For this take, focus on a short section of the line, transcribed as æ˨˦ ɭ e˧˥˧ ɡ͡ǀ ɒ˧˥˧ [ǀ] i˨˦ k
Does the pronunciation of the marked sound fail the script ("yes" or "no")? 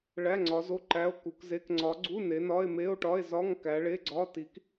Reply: yes